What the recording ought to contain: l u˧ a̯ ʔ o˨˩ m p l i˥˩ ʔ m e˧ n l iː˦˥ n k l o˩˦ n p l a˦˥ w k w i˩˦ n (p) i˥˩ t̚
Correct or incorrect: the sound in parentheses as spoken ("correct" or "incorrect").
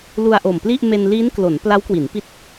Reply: correct